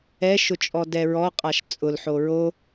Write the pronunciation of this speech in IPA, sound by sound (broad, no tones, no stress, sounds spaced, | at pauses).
ɛ ʃ ʊ t͡ʃʼ ɔ d ɛ ɹ ɔ qʼ a ʃ t͡sʼ ʊ l ħ o ɹ o